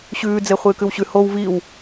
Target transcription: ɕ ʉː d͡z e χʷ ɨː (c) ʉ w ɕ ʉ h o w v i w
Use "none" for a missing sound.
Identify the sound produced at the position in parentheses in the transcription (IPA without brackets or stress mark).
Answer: k